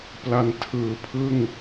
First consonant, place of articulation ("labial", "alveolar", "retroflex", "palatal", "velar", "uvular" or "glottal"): labial